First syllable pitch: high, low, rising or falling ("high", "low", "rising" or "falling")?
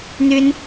high